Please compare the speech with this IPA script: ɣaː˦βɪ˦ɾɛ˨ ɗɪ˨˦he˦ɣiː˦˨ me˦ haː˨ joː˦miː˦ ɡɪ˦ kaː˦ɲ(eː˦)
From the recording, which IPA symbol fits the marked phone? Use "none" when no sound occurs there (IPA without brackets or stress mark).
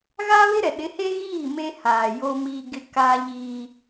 iː˦